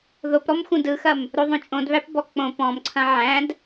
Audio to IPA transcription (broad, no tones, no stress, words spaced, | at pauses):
ðopɾɔm xũdɯxɐm | ɾoðˤõt͡ʃʼõdβæp bɔk͡põ pɔ̃m ǀʰɐ̃ʕæ̃d